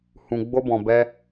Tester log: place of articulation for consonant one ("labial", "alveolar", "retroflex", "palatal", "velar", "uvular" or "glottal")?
glottal